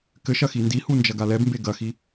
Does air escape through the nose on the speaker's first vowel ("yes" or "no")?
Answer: no